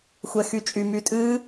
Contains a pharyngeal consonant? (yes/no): no